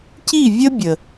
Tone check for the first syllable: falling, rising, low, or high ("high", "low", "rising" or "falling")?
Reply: falling